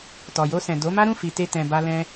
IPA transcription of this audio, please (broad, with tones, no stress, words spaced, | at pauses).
tɔ˨jo˧sɛ̃˨ do˨˦ma˦ ɾũ˦˨fi˨te˧ tɛ̃˧ba˦lɛ̃˦